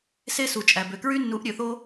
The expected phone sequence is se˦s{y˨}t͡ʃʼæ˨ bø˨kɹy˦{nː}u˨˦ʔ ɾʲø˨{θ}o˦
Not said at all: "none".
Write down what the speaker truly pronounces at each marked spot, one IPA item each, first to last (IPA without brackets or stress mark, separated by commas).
u˨, nː, θ